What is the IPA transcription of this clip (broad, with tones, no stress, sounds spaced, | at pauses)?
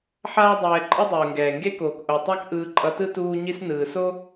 ħ aː˦ dˤ ɛː˧ ǃʼ ɯ˦ dˤ uː˨ ŋ ɡ ɛː˨ ŋ ɡ e˦ k oː˨ k ʔ o˨ tˤ a˦ k ʔ ɯː˧ ǃʼ ʌ˧ t ɯ˦ t uː˦ ɲ i˦ s n ɯː˨ s o˦